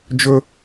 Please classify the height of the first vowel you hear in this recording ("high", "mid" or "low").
mid